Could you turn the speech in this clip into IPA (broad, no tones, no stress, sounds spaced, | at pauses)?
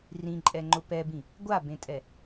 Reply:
r ĩ ǃʼ ɛ ŋ͡ǃ ʊ p ɛ b ĩ | ɡʷ a b ẽ tʼ ɛ